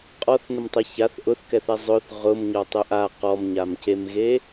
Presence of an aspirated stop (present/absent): absent